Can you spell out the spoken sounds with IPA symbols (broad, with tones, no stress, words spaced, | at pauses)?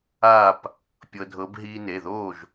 a˥˨p | pʲɤ˧dʱɤ˧˥b ɦiː˧ne˩˧˩ðoː˥˨ʒ